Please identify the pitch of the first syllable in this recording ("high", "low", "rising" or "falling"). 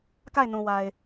falling